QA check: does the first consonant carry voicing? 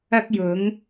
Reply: no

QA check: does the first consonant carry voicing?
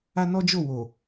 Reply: yes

